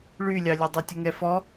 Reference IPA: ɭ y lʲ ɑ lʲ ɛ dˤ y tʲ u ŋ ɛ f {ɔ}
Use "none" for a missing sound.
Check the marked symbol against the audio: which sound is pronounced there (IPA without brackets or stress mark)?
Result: ɔ